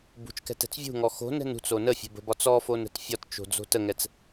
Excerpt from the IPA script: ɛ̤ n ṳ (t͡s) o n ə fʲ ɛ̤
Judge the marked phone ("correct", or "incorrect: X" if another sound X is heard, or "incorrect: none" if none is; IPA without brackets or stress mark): correct